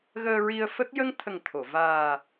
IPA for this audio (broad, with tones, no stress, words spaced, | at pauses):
ɣəː˧ɹi˧ə̯ fə˦˥k̚ jə˧ŋt̪ʰə˨˩ŋ t̪ʰo˨˩˨ vaː˨˩